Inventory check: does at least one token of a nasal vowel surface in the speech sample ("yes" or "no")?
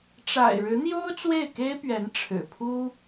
no